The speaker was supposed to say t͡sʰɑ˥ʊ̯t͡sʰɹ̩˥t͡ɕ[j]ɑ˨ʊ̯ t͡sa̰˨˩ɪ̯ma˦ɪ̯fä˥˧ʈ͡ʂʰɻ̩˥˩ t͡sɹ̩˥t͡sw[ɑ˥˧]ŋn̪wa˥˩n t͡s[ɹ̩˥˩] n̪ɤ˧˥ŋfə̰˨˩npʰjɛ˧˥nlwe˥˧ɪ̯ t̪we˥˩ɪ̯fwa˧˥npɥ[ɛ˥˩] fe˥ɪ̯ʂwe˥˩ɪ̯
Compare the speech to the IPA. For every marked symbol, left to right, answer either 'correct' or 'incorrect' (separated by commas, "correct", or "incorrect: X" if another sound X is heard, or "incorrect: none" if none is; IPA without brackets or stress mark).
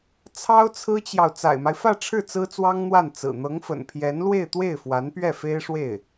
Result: correct, incorrect: ɑ˥, incorrect: ɹ̩˨˩, correct